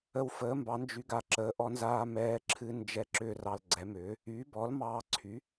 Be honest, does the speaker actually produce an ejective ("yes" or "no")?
no